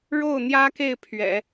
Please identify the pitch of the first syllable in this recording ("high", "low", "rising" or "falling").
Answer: falling